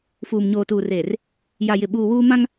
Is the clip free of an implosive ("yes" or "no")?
no